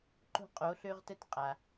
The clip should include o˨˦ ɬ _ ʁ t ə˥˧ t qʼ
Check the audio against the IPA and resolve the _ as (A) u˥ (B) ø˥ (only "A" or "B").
B